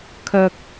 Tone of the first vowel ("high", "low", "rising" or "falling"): high